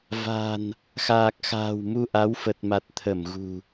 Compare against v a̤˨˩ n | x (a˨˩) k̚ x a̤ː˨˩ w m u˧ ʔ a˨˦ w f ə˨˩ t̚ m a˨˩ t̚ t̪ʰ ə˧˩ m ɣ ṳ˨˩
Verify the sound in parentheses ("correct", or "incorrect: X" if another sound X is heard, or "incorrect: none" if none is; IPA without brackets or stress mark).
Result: incorrect: aː˨˩